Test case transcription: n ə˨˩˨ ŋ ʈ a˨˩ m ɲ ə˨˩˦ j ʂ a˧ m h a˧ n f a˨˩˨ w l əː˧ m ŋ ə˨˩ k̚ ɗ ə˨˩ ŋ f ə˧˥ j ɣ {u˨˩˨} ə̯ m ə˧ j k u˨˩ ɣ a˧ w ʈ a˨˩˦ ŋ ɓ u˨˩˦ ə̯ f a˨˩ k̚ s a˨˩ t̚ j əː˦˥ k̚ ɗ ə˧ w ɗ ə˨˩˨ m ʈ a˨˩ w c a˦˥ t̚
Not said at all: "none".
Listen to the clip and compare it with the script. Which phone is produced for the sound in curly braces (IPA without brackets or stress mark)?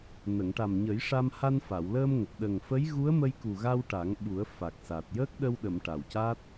u˧˥